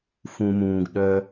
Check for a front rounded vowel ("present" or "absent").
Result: present